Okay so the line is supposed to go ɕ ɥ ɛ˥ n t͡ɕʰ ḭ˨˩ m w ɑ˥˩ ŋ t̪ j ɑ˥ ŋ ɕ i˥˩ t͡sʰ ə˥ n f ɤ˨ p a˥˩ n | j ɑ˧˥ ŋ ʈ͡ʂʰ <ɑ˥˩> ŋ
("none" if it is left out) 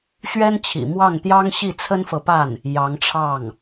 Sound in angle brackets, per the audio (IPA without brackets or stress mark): ɑ˥˩